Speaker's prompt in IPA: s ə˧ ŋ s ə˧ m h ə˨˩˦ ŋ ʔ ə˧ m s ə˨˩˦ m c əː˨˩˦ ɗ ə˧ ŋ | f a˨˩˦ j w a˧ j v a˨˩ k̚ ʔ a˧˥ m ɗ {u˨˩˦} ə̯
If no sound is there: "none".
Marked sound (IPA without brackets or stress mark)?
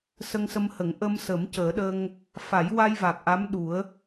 u˨˩˦